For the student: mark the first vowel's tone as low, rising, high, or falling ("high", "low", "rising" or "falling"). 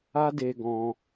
high